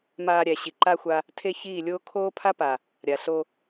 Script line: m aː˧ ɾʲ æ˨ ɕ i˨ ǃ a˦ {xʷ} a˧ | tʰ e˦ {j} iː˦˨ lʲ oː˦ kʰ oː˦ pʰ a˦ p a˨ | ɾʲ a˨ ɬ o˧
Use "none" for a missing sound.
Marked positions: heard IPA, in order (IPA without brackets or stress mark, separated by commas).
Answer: xʷ, ç